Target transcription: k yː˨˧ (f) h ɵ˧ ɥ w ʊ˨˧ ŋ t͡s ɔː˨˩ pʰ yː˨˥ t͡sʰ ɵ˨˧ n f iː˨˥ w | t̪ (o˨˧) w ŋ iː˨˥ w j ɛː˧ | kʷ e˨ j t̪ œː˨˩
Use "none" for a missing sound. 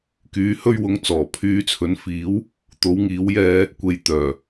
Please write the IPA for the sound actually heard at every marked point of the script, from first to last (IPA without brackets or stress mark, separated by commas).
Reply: none, o˨˧